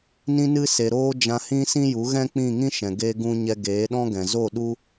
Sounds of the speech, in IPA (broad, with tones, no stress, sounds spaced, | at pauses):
n ĩ˧ n ɨ˧ s e˨ ɾ oː˧ d͡ʒ ã˧ h ĩ˦ s ĩ˦ j u˨˦ ɣ ɛ̃˦ k͡p ĩ˦˨ ŋ ĩ˦ ʃ ɛ̃˨ ɡ e˦ ɡ ũ˦ ɲ ɛ˧ ɡ eː˨˦ ɗ ɔ̃˦ ɡ ɛ̃˨ z o˦˨ ɗ u˦